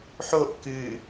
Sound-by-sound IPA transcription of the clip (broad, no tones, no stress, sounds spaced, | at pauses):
ħ o ʔ k ɨ